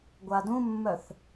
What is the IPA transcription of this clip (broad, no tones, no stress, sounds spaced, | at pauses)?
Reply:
ɡʷ a d ũ mː œ θ